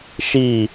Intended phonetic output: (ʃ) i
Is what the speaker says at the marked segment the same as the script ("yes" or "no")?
yes